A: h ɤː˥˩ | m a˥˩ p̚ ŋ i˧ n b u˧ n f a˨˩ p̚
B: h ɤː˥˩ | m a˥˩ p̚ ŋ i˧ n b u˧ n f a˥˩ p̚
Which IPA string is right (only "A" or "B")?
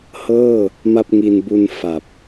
A